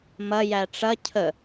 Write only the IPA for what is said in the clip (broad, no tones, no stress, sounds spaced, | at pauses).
m ɐ j æ ʈ͡ʂ ɐ cʰ ə